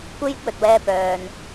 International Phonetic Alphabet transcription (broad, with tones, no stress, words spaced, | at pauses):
kʷe˥jɪ˥k̚wɵ˨t̚wɛː˧ pœː˨n